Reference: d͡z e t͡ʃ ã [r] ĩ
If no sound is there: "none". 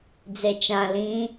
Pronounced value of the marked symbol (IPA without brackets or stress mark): l